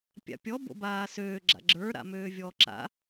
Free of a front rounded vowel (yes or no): no